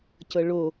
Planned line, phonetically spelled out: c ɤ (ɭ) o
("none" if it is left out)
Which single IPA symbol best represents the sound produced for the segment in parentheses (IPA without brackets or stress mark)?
ɭ